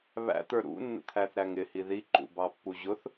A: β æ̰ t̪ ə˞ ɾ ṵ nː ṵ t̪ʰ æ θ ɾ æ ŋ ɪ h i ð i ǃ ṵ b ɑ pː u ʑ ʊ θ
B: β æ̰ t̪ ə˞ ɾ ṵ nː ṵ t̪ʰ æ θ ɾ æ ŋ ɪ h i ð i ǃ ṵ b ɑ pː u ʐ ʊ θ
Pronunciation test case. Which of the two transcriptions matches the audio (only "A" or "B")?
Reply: A